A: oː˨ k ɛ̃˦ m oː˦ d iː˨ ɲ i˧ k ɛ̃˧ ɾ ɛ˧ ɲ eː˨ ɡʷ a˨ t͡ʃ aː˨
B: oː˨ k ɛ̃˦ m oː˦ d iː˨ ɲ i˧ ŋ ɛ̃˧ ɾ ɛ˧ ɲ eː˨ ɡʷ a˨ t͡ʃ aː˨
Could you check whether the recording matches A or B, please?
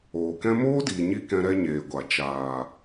A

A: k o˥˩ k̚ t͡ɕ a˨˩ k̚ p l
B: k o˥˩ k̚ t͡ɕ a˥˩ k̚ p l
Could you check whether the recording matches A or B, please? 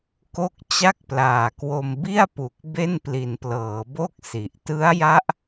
B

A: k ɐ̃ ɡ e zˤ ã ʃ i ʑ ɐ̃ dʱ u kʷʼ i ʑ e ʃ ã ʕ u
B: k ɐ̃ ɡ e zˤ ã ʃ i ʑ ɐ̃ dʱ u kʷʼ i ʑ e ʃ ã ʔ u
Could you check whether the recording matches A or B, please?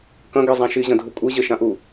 B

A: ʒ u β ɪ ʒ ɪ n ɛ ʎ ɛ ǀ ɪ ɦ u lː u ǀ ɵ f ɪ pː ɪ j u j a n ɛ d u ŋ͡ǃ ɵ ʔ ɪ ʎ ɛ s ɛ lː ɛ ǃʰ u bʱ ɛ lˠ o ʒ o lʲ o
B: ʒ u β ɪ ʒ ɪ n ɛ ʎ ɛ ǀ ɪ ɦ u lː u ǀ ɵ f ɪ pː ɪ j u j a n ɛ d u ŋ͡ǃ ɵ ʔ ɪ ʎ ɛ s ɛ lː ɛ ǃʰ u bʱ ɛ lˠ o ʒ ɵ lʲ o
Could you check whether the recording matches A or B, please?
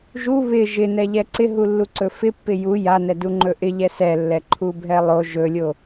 B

